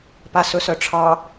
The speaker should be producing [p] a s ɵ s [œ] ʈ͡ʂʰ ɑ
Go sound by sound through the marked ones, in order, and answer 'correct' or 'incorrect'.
correct, correct

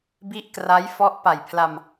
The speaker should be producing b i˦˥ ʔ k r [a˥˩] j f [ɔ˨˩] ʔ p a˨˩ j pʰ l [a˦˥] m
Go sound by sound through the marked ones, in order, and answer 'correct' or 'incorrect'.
incorrect, incorrect, incorrect

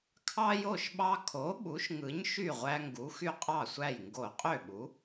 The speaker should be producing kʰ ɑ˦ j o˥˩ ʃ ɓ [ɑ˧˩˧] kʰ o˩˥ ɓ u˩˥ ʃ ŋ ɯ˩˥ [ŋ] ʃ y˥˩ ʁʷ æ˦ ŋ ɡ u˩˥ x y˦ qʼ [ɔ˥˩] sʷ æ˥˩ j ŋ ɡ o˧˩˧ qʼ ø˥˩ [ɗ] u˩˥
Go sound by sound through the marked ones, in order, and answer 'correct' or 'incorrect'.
incorrect, incorrect, incorrect, incorrect

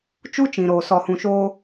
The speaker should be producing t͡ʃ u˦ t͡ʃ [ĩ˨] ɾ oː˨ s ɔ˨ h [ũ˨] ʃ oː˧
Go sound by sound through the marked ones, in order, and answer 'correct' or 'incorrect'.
correct, correct

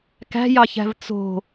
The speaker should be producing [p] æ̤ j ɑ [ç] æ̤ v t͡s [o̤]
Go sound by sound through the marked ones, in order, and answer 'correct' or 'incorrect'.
incorrect, correct, correct

